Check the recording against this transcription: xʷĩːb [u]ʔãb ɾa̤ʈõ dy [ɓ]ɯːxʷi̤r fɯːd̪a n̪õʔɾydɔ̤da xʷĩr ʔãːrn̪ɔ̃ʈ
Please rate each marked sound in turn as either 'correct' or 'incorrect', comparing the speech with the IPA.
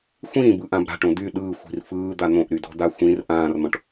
incorrect, incorrect

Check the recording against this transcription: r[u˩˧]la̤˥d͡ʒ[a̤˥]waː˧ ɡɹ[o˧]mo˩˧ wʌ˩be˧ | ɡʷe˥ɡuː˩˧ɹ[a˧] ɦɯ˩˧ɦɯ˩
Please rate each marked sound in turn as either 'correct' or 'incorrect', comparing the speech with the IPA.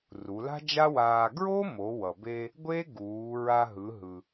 correct, incorrect, incorrect, correct

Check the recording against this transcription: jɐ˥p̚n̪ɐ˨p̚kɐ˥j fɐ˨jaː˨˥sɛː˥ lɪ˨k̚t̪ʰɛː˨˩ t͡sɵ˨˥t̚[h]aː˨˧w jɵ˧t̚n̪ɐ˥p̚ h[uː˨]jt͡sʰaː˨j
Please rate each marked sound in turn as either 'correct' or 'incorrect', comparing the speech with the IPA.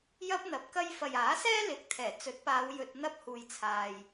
incorrect, correct

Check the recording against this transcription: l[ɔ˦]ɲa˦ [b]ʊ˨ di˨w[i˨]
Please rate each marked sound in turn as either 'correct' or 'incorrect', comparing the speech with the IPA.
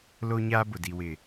incorrect, correct, incorrect

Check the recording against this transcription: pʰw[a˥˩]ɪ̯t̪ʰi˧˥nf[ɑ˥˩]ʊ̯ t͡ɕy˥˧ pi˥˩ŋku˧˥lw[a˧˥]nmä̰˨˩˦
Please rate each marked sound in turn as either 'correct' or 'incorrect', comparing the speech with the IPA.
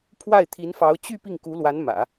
correct, incorrect, correct

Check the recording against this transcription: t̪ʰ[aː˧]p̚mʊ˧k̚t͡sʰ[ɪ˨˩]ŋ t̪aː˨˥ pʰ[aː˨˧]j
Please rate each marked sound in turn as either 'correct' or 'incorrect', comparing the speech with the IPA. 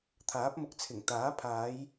incorrect, correct, correct

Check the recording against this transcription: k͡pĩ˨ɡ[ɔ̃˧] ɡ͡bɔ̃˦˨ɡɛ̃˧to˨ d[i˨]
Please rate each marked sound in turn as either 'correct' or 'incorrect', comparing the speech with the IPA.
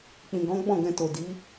incorrect, incorrect

